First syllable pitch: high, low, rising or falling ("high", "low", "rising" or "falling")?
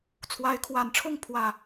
rising